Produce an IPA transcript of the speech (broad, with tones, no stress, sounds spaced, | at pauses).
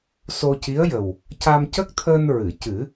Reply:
s o˧ c i˧˥ ə̯ j ə˨˩ w | c a˧ m c ə˦˥ k̚ t̪ʰ əː˧ n ɹ ɨ˨˩˨ c ɨ˨˩˦